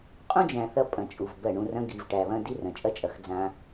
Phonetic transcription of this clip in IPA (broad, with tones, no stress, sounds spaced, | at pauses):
qʼ ũ˦ d͡ʒ æ̃˨ θ ɐ˦ pʼ ɐ̃˨ t͡ʃʼ u˨ v b ɜ˦˨ ɳ ũ˦ r ɐ̃˦ ɡ i˨ v ʈ æ˨ β ɐ̃˦ d i˦ r ɐ̃˨ t͡ʃʼ ɐ˦ t͡ʃʼ ɐ˨ x d͡z ã˦